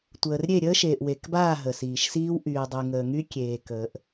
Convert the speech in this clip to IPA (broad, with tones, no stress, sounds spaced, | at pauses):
tʷ əː˨ r ɾʲ e˦˨ ɾʲ əː˦ ʃ eː˨ ʔ w e˨ k b aː˦˨ ɦ ə˨ s iː˨ ʃ s iː˦ w ʔ yː˨ dˤ y˨ ŋ əː˨ ŋ y˦ kʲ eː˨ k əː˨ ʔ